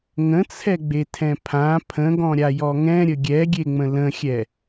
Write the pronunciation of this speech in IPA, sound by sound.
ŋ ə̃ t͡sʰ ɛ ɡ͡b e tʰ ɛ̃ pʰ ã pʰ ə̃ ɡ ɔ̃ ɾʲ a j ɔ ŋ ɛ̃ ɾʲ ə ɡʲ ɛ ɡʲ e ŋ͡m ə̃ l ə̃ xʲ ɛ

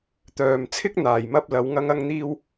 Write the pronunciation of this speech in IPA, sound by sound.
t̪ œː˨ m t͡sʰ ɪ˥ k̚ n̪ aː˨˩ j m ɐ˥ p̚ l ɐ˨˧ w ŋ ɐ˥ ŋ ɐ˥ ŋ n̪ iː˥ w

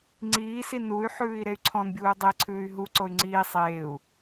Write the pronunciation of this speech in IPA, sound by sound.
ŋ͡ǀ iː s i n u y̯ ħ ʉː i̯ ɾ e y̯ ǀʰ ɔ̃ n bʲ uː dˤ e ǀʰ ʉː y̯ ɦ u ǀ o y̯ ŋ͡ǀ iː sˤ eː u̯

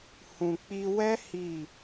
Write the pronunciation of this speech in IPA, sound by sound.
h ũ˨ k͡p i˧ w ɛ˦ h i˦˨

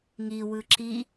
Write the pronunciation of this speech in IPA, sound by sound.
ŋ i w ɯ ǁ i

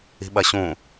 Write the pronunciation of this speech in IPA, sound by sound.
i̤ ɓ ɐ ɕ ũ

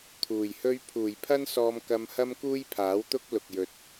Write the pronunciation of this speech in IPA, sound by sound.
t̪ʰ uː˨˩ j h ɵ˥ ɥ pʰ uː˨˩ j pʰ ɐ˥ n s ɔː˧ m k ɐ˧ m h ɐ˥ m k uː˥ j pʰ aː˨˥ w t̪ ʊ˥ k̚ l ʊ˨ k̚ j ɵ˨ t̚

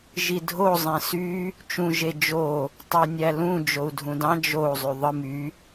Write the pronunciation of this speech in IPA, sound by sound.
ʒ i dʱ o zˤ ẽ s y | t͡ʃ ũ ʒ e d͡ʒ o | tˤ e nʲ æ l ũ d͡ʒ o u̯ dʱ ũ d ɑ̃ d͡ʒ o u̯ zˤ y ðˤ ɯ m y

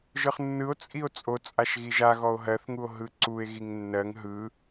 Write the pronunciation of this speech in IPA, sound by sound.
ʒ ɯ χ nː ɯ o̯ t͡sʼ i o̯ t͡sʼ o t͡sʼ a ʃ ɣ i ʒ a ɣ ɔ o̯ ɦ ɜ θ ŋ u o̯ ɦ ɯ ǀ u e̯ ɣ i ŋ nː ɜ ŋ ɦ ɯ

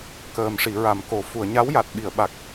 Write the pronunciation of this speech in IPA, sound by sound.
k əː˨˩ m ʂ i˨˩˨ ɹ a˨˩˨ m k o˨˩ f u˨˩˨ ə̯ ɲ a˧˥ w j a˨˩ t̚ ɓ i˨˩˨ ə̯ ɓ a˨˩ k̚

